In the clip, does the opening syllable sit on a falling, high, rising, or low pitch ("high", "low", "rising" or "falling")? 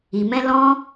low